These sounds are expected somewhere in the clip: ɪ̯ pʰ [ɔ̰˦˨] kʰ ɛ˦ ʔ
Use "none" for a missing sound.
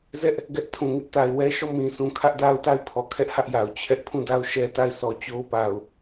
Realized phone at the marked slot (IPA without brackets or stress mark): ɔ˨